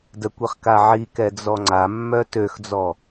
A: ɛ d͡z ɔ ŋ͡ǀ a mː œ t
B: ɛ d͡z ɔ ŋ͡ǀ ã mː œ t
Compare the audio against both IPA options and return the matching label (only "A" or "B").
A